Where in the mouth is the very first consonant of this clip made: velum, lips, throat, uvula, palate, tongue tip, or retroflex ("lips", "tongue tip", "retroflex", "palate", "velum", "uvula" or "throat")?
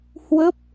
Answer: throat